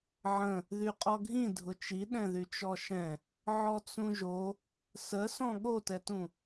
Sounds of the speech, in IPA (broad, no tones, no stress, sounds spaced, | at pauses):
ʕ ə̃ | ð y qʼ ɔ ɡʱ ĩ dʱ ʊ t͡ʃ i ɗ ɛ̃ ð y t͡ʃ ɔ ʃ ɛ̃ | ʕ ɔ t͡s ũ ʒ o | s ə s ɔ̃ ɠ o t ɛ t ũ